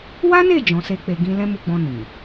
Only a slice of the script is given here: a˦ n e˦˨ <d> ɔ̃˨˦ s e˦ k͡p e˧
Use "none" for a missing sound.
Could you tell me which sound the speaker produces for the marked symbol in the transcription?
d͡ʒ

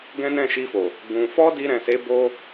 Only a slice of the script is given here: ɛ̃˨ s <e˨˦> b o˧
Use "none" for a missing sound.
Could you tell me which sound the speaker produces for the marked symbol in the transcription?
e˨˦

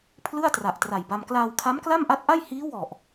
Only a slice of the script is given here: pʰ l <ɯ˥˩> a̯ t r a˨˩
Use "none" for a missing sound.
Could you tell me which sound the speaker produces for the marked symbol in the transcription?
ɯ˥˩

